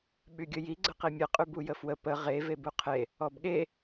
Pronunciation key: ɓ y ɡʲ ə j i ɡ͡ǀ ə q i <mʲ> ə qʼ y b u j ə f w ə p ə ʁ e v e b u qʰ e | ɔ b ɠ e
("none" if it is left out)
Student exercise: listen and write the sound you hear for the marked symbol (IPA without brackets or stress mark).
mʲ